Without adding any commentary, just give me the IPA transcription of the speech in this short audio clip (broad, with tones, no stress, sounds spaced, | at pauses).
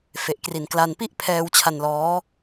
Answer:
f e˨˩ ʔ k r i˨˩ n k l a˧ n p i˥˩ ʔ pʰ ɛː˧ w t͡ɕʰ a˧ n l ɔː˦˥